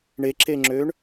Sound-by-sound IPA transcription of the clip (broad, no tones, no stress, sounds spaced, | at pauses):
ɳ e ǁ e ŋ͡ǁ ø ɳ